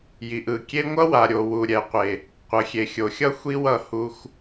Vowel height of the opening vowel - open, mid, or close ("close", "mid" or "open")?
close